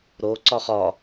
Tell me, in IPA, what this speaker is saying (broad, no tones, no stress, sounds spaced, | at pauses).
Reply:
ɾ o ǀ ɒ χ ɒ